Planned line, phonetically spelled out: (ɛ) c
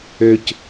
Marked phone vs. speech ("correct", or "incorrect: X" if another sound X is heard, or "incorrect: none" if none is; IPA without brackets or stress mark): incorrect: ø